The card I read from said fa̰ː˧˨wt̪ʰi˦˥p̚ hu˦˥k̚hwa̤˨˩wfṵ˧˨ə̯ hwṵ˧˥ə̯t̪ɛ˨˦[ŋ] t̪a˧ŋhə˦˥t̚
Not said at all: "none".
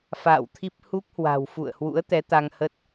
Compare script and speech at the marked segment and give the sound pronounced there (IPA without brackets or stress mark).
none